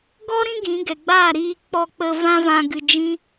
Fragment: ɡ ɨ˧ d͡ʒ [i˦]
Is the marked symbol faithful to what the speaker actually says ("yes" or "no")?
no